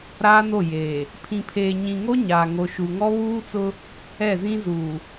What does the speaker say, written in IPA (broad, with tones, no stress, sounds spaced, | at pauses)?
ɾ aː˦ n o˦˨ j eː˨ | pʰ ĩ˨ pʰ eː˨ ɲ ĩ˨ ŋ o˦ ɲ aː˨ ŋ o˨ ʃ u˨ ŋ ɔ˦ β uː˦ t͡s ʊ˦ | ɛ˦˨ z ĩ˦ z uː˨